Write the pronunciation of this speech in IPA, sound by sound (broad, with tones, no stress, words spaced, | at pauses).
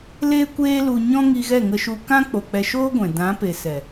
leː˦kʷeː˦lu˧ɲɔ̃˦ ŋi˧ɣɛ˦˨ŋə˧ʃu˧ kã˦k͡po˨ k͡pɛ˧ʃoː˦ɡʷɛ̃˨ dã˨˦pe˨sɛ˨